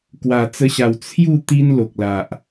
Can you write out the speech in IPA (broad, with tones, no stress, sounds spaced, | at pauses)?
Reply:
k w a˨˩ t͡s ə˧ ɕ a˨˩ w t͡sʰ j u˥˧ t̪ i˦ n l o˨ k̚ l a˨ ʔ